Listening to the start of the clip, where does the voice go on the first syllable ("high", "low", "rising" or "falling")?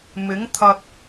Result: rising